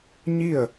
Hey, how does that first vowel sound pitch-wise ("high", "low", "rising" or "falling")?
falling